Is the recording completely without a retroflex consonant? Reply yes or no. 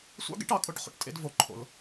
no